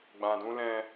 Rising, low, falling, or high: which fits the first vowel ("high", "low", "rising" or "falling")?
low